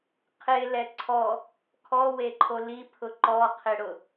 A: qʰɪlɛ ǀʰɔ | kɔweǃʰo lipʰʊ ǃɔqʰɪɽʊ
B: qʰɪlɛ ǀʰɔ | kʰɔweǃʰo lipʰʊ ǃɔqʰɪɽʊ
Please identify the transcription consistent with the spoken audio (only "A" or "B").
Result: B